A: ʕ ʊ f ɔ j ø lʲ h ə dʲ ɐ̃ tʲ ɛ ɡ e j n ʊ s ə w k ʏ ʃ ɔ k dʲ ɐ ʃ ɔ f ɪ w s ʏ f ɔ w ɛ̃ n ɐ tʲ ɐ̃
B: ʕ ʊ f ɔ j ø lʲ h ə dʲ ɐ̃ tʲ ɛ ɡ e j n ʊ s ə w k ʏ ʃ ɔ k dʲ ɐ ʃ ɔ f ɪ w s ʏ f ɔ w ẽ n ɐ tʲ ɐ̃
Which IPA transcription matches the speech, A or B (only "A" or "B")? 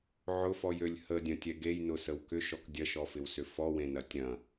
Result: B